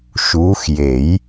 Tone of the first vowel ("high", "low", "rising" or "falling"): rising